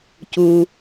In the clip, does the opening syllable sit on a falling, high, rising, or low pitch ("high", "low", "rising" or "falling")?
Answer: low